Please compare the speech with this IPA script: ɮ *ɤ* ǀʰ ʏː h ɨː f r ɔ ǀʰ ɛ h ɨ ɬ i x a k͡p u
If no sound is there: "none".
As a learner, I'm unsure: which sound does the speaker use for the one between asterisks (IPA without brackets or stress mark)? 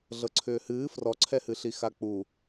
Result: ɤ